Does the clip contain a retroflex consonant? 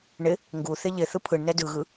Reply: yes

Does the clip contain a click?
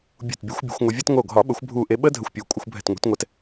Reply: no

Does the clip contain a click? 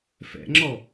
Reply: yes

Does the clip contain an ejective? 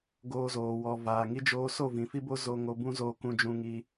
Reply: no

